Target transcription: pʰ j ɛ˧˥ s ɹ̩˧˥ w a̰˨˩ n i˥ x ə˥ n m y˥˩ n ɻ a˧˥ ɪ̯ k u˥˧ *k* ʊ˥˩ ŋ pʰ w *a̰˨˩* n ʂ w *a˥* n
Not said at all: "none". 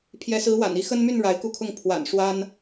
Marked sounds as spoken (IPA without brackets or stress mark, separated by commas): kʰ, a̰˨˩, a˥